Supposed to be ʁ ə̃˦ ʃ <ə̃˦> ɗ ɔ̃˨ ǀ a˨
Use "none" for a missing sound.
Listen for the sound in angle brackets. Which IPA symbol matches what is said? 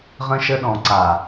ə˦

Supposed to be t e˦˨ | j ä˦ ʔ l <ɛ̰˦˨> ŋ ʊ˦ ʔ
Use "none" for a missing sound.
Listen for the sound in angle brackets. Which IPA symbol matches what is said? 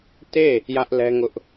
ɛ˦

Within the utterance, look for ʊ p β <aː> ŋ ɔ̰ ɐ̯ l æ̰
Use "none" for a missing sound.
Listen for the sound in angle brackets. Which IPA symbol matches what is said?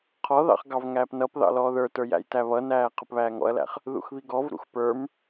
æː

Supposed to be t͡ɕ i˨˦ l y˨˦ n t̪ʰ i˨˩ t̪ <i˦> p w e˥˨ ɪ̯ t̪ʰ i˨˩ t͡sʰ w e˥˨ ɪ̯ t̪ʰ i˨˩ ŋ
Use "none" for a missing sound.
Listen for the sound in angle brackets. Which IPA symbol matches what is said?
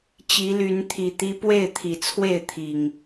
i˦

